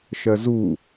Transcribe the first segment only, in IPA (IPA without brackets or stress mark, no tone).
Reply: ʃ